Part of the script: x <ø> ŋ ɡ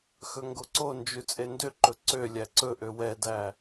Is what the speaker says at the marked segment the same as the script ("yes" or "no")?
no